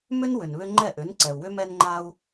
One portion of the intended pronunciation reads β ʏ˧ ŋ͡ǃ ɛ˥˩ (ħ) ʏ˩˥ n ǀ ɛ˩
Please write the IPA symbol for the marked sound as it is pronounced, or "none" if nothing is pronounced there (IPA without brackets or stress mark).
ʔ